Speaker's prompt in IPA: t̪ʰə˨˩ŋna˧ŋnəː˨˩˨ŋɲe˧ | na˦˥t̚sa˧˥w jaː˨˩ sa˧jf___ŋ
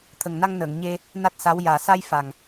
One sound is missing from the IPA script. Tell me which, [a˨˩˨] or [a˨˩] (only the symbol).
a˨˩